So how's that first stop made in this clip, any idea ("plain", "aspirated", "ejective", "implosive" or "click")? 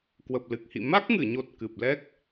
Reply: plain